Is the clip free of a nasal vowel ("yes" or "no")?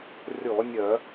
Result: yes